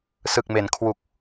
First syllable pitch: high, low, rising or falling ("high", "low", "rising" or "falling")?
low